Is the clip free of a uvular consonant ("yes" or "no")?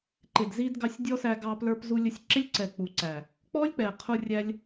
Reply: no